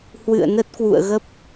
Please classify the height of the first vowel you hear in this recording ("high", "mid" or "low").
high